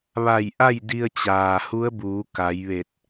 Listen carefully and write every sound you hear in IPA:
ʋ a˧˩ j ʔ a˥˨ j d i˧ ə̯ t͡ɕ aː˩ h u˧˥ ə̯ b uː˩˧ k a˩˧ j ʋ e˧˩ t̚

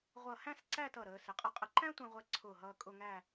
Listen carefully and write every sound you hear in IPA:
ʁʷ ʌ˧˩ h æ̃˥˧ s ǀ æ˥˧ t ʌ˧˩ ɾ əː˩˧ s ɪ˩˧ qʼ ʌ˧ qʼ ə˧ ǃ æ̃˥ tʷ ɛ̃˧ ʁʷ ɛ˧ ǀʰ ʊː˧˩ ɦ ʌː˧ kʼ ʊ˥˧ ŋ æ˥˧

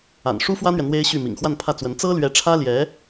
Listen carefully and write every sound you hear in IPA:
a̰˨˩ n ʂ u˥ f w ä˥ n̪ ɥ ɛ˨ n̪ w e˥ ɪ̯ ɕ y˥˩ m ḭ˨˩ ŋ x w a˥˧ n pʰ ä˥˩ t͡s w ə˧˥ n t͡s ɤ˥ l ɥ ɛ˧˥ ʈ͡ʂʰ ä˥ l j ɛ˧˥

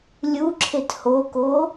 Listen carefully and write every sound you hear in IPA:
lʲ u ǁʰ e t h o k o

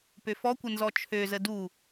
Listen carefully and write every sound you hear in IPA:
p ø f ɔ kʷ ə n z ɔ t͡ʃʰ ø z ə d u

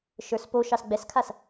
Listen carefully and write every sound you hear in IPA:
ʃ ə˞ s p o ʃ ɑ s ɡ͡b ɛ s kʰ a s

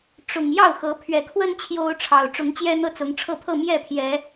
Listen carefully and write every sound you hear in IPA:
ʈ͡ʂ ʊ˨˩ ŋ j ɑ˥˨ ʊ̯ x ɤ˨˦ pʰ ɥ ɛ˨˩ kʰ w ə˦ n t͡ɕʰ j o˦ ʊ̯ ʈ͡ʂʰ ɑ˨˩ ʊ̯ ʈ͡ʂ ʊ˨˦ ŋ t͡ɕ j ɛ˦ n̪ ɤ˦ t͡s ʊ˨˦ ŋ ʈ͡ʂʰ ɤ˥˨ pʰ ɤ˥˨ m j ɛ˥˨ pʰ j ɛ˨˦

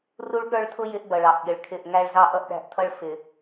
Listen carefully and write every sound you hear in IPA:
r u˦ ɭ ɠ ə˞˦ ɭ tʰ ʊ˦ j ɪ˦ ʔ b ʌ˨ ɭ ɑ˨ ʔ ɠ ɪ˨ ɭ kʰ ɪ˦˨ ʔ ŋ æ˦ ɭ z ɑ˦ ʔ ʌ˦ ʔ ɗ æ̤˦ ʔ tʰ ʌ˦ ɭ f ɪ˨

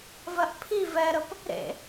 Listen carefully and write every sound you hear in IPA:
v ɜ ʔ pʰ i v ɛ ɾ ə p | ɾ ḛ

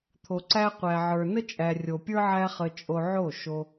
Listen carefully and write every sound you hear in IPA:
t̪ʰ o˨ ǀ æ˧ qʷ æ˨ ʕ ə˞˨ n ə˦ t͡ʃʼ æ˨ rʲ o˨ pʲ ə˞˦ ʕ æ˦ χ ə˧ t͡ʃʼ o˧ ʕ o˦˨ ʃ o˧

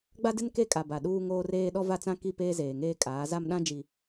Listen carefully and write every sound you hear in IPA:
ɡ͡b a˦ d ɪ˦ n k e˦ kʼ a˨ b a˨ ɗ uː˦ ŋ oː˦ r eː˦ ɗ ɔ˦ v a˦ t͡s ã˦ k i˦˨ p eː˦ z eː˨ ŋ eː˦ kʼ aː˨˦ z a˦ m ɗ ã˦ d͡ʒ i˨

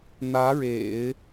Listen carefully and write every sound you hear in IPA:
n̪ ä˧˥ ɻ ḛ˨˩˦ ɪ̯

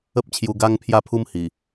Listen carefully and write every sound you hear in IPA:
ə˦ p̚ t͡ɕʰ j u˧ ɡ a˦ ŋ pʰ j a˥˧ pʰ u˦ m h i˨˩

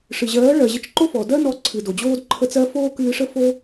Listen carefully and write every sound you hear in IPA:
ʂ ɨ˨ ʑ ɜː˨˦ ɭ ɜ˨ ʑ ə˧ t͡ʃ ǃ o˦ f ɔ˨ d ɜ˦ n ɔ˧ ǀʰ ɨ˨ d o˨ d͡ʑ oː˦ d ǃʰ ə˧ t͡s ɜ˧ f oː˦ k ɨː˧ ʂ ə˦ f o˦

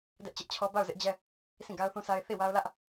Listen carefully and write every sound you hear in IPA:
d ɛ˦ ʔ t͡ɕ ɪ˦ ʔ t͡ɕʰ ɔ˦ b a˦˨ ʊ̯ z ɪ˦ ʔ d͡ʑ ɛ˦ | sʰ ĩ˦˨ ɡ a˦ ʊ̯ θ ũ˦ s a˦ ɪ̯ θ i˦˨ w a˦ ʊ̯ l ä˦ ʔ

